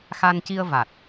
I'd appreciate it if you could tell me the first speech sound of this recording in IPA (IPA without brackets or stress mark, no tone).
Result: x